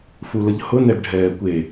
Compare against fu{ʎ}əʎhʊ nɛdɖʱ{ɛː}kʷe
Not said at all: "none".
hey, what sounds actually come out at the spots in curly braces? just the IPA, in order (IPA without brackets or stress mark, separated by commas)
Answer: l, ɛː